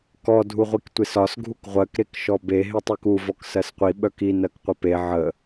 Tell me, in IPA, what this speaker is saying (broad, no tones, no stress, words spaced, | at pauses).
kɔ dʱuʁʷiktʷesɒs ɡʱukʁʷɜk ɾekʃɔbe ɦetˤʉku vɔksɜsqʷi ɓœki nɜkqʷœpe ʕə